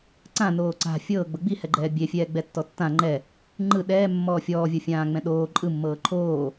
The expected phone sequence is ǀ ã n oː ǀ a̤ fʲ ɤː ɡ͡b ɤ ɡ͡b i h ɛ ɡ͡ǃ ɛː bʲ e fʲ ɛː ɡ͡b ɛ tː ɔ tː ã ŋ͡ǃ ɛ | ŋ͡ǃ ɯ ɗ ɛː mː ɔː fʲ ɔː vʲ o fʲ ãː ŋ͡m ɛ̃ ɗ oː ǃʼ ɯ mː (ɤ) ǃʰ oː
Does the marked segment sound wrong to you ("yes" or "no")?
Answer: yes